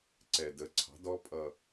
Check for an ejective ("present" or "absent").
present